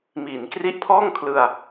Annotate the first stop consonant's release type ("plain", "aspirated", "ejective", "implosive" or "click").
plain